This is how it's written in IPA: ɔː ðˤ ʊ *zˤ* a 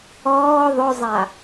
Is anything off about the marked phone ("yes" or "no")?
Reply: no